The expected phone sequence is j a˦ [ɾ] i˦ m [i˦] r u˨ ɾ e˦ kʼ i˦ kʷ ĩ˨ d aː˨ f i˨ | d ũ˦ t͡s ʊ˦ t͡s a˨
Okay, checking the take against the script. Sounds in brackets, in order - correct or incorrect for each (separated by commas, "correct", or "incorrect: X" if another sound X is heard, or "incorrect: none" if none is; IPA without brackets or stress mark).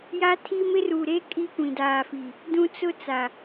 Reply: incorrect: tʰ, incorrect: ɪ˦